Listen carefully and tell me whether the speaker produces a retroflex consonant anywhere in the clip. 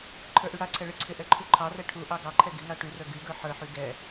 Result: yes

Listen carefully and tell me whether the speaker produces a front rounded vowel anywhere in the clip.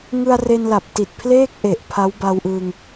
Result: no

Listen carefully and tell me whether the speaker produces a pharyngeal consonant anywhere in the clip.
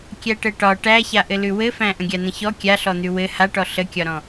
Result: no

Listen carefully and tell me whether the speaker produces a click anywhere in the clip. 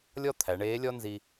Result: no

